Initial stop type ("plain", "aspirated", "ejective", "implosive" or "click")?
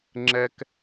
click